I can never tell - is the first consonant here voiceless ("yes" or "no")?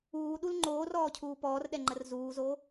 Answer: no